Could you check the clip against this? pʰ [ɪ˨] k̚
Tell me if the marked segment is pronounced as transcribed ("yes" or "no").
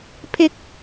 yes